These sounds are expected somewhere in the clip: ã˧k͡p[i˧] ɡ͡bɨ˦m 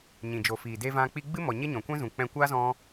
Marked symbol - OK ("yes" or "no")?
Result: yes